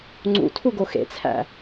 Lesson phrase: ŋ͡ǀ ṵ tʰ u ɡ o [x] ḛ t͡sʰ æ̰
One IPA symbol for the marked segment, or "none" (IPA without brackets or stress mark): x